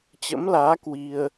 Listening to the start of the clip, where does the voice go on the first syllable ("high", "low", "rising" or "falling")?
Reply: rising